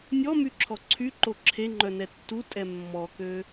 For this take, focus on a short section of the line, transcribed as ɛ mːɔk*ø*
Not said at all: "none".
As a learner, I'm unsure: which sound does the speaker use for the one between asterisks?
ø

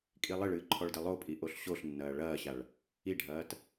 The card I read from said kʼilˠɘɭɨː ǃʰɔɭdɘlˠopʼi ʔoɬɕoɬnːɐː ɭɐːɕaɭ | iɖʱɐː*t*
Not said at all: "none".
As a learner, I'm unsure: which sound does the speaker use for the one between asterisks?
t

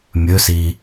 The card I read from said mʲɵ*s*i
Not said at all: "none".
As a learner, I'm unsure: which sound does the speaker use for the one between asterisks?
s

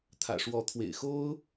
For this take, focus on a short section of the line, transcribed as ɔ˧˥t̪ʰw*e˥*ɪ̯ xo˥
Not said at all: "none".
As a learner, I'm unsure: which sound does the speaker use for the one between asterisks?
ḛ˨˩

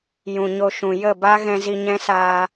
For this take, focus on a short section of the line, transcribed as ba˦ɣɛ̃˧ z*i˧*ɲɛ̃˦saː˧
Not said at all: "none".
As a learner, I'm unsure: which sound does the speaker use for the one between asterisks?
i˧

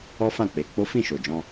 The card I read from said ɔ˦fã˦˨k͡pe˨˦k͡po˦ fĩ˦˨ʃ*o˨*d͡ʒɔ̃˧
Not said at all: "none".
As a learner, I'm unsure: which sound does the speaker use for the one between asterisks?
o˨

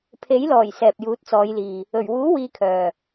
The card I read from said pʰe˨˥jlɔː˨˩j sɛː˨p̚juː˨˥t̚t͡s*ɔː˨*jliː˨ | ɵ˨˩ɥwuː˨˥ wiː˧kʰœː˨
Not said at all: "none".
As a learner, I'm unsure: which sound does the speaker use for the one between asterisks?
ɔː˨˧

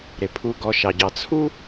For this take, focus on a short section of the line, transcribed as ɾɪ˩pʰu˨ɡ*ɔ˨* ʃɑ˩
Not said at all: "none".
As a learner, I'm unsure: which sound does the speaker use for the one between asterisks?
ɔ˨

